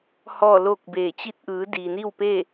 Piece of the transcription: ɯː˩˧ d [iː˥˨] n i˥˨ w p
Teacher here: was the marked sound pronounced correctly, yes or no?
no